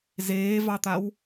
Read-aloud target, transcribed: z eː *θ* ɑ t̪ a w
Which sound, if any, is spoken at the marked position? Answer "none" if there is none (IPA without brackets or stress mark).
v